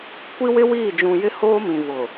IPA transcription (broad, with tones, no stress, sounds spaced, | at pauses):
kʷ i˦ w ɪ˦ w iː˦˨ d͡ʒ ũ˨ j ɪ˦ h oː˦ m ĩ˨ v ʊ˨